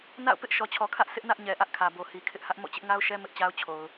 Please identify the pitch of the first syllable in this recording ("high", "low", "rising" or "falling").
falling